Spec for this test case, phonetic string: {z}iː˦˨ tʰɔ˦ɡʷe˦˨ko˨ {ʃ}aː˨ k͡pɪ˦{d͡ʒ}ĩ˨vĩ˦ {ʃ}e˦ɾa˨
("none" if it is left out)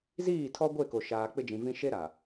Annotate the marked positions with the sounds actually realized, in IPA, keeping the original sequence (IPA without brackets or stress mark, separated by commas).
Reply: z, ʃ, d͡ʒ, ʃ